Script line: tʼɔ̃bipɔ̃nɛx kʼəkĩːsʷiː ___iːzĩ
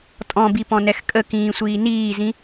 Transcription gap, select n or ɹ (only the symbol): n